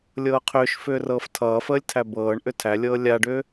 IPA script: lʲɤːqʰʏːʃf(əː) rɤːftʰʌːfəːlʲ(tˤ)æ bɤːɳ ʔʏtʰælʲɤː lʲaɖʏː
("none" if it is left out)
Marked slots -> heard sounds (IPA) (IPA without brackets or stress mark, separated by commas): ʏː, tʰ